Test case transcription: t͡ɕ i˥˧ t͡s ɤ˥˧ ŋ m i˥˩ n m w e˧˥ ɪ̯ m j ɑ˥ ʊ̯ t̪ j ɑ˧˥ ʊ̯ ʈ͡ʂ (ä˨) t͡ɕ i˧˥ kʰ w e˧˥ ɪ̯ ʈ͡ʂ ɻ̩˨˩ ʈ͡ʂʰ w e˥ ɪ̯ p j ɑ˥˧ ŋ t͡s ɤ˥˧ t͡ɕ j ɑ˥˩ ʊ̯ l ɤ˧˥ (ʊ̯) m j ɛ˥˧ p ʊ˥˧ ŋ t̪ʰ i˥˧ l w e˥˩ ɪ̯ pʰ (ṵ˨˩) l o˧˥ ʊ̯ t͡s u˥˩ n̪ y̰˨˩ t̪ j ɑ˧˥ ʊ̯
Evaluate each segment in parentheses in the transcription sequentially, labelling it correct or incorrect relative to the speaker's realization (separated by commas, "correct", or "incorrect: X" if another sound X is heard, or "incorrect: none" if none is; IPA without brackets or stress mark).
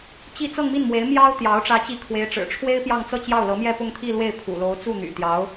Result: incorrect: ä˧˥, incorrect: none, correct